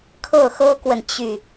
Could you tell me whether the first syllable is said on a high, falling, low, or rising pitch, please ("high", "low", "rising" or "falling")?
falling